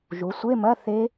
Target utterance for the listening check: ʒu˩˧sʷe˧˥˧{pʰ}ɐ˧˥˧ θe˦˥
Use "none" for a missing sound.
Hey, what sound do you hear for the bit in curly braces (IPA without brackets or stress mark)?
m